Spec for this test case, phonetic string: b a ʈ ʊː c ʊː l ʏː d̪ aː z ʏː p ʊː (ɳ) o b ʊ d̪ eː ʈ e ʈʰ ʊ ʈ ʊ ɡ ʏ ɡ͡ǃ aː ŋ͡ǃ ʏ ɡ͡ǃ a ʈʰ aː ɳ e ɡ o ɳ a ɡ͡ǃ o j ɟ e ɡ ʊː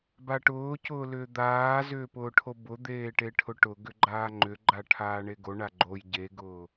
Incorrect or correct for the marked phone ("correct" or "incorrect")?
incorrect